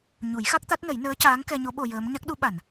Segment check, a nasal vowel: absent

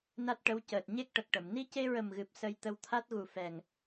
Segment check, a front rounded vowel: absent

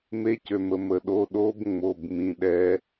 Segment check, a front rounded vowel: present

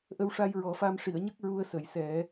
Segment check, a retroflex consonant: present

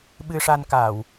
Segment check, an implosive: present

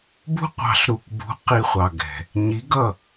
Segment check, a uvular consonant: present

